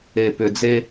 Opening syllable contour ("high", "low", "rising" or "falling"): low